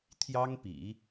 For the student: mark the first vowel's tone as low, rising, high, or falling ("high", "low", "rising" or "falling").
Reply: high